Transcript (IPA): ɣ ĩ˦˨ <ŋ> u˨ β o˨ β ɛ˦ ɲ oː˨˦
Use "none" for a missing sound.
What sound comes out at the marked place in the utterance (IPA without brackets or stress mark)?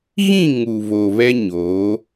ŋ